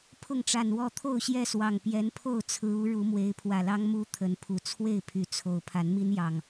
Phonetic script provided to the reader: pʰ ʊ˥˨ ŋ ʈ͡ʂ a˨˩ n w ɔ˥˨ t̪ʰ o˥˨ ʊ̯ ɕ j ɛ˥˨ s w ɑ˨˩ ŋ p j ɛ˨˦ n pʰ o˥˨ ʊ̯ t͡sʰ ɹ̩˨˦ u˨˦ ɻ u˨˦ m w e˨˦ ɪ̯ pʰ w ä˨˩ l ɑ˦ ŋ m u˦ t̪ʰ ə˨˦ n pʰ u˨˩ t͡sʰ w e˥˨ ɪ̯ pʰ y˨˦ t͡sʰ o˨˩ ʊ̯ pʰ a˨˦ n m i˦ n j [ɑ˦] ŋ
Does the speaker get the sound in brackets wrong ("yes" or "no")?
yes